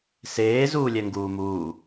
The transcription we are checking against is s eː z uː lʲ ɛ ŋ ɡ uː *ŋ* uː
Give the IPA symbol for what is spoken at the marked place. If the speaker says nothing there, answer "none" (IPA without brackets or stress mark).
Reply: m